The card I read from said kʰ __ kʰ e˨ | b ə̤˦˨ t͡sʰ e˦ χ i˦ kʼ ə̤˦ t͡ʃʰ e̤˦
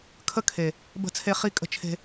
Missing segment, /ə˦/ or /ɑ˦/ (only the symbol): ə˦